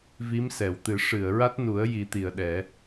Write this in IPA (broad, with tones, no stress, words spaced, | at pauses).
vi˧˥msɛ˨˩˨wt̪ɨ˨˩˦ ʂɨ˨˩˨ə̯ɹa˦˥t̚nu˨˩˦ə̯ji˨˩˦ t̪i˨˩ə̯ɗɛ˨˩˦